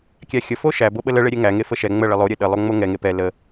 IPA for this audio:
kʲ æ xʲ ə f o ʃ æ b o ɓ ə l ə ɭ e ɾʲ e ŋ æ ŋ e f ə ʃ ɛ ŋ͡m ə ɭ ə lˠ o ɾʲ e ɗ ə lˠ o ŋ͡m o ŋ ɛ ŋ e p ɛ l ə

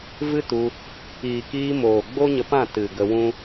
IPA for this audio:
v ɨ˦ t u˧ | iː˨ k iː˧ m oː˨ ɡ͡b o˦ ɲ ə˧ p ã˦˨ t ɨ˨ ɡ ə˧ w ũ˦

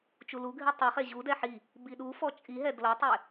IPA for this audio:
t͡ʃ u l u ɡʱ i tˤ i χ e ʑ u d ɛ ħ i | b i ɗ u f ɔ t͡ʃʼ i ɦ ɛ d l ɤ tˤ e

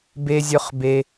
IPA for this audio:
b e˥ zʲ œ˥ χ b e˥

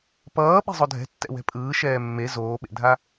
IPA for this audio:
p ʌː ɓ e̤ zˤ o dʱ ɛ̤ tː ɛ̰ w ɛ̤ pʼ ɯː ʃ ɛː mː e z oː ɓ ḛ dʱ a

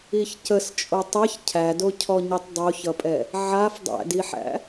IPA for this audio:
i ç c ə s t͡ʃʼ o tˤ ɛ ç cʰ æ d o cʰ ɔ ɲ i tˤ dˤ o ç ʌ pʼ ɛ | ʕ a f dˤ æ̰ d i ħ æ̰

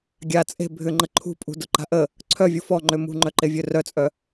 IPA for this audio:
ɡʲ a t͡sʼ e̤ bʱ ʏ ŋ͡ǃ ə ǃʰ ṳ pʼ ṳ d ʊ ǃ a̤ ʔ ə | ǀʰ œ vʲ u f ɔ ŋ͡ǃ ø m ṳ ŋ͡ǃ œ ǃ e vʲ ø r œ t͡sʼ œ

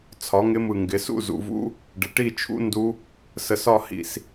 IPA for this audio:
t͡sʰ ɒ˩˥ ŋ ɪ˦˥ m ɯ˧˩ ŋ ɡ ɪ˩˥ s ṵ˥˨ z ṵ˩˧ v ṵ˦˥ | ɖ ɪ˩˧ ʈ i˥˨ t͡ʃʰ ṵ˦˥ n d u˦˥ | s ə˧˩ s ɒ˥˨ h ḭ˧˩ s

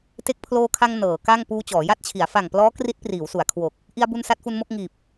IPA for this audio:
t e˦˥ k̚ pʰ l oː˧ kʰ a˧ ŋ n ɤː˩˦ k a˥˩ ŋ p uː˧ t͡ɕ ɔː˩˦ j a˥˩ t̚ t͡ɕʰ i˩˦ a̯ f a˨˩ ŋ p l ɔː˦˥ k r i˦˥ t̚ p r iː˩˦ w s u˩˦ a̯ kʰ w o˨˩ k̚ | ʔ i˧ a̯ b u˧ n s a˦˥ t̚ f u˧ n m o˥˩ k̚ ŋ iː˨˩ p̚

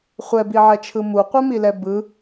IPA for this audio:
χʷ ɛ b i ʕ ɛ t͡ʃʰ ɯ m u qʷ ɛ m i l ɛ b ɯ

